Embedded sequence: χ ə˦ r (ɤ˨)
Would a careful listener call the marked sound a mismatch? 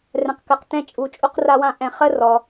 yes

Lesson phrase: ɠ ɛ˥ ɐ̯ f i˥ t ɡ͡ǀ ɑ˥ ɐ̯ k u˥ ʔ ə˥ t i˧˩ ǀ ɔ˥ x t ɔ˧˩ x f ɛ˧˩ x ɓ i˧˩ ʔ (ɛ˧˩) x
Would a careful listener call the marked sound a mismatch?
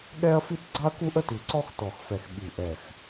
no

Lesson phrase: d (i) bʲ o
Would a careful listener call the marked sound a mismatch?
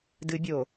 yes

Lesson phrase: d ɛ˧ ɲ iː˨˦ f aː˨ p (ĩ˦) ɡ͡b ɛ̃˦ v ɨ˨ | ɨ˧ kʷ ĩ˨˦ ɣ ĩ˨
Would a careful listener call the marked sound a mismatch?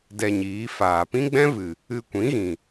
no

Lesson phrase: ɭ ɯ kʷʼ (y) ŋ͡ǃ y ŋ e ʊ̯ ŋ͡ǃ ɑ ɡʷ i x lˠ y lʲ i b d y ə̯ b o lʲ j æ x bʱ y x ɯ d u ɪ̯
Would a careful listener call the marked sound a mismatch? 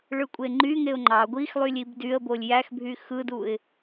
yes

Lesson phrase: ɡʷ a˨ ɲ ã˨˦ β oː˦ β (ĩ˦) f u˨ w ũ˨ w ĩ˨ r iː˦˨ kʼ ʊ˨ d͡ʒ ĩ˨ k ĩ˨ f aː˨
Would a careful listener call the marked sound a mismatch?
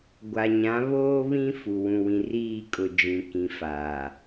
no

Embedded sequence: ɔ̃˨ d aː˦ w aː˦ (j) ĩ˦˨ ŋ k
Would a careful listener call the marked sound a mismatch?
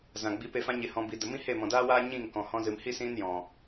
yes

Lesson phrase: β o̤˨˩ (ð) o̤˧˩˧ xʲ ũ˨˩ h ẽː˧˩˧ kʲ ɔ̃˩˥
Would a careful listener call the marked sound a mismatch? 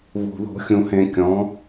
no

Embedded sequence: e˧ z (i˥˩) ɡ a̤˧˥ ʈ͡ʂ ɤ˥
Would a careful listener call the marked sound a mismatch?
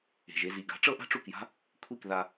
yes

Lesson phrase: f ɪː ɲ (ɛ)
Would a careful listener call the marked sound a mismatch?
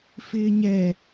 no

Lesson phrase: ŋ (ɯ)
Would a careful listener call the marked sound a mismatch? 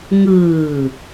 yes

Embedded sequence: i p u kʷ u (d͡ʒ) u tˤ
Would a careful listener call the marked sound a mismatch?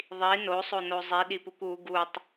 yes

